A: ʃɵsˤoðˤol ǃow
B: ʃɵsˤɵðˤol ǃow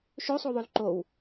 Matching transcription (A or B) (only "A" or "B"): A